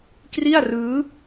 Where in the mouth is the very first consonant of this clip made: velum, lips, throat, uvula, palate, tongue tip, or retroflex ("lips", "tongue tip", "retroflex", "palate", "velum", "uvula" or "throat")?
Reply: velum